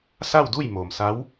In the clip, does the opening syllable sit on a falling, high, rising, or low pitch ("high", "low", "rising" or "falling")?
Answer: falling